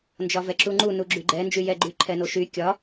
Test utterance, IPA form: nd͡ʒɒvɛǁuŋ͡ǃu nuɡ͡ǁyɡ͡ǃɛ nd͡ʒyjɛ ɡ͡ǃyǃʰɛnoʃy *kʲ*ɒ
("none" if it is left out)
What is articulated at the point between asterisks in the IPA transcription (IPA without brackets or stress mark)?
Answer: kʲ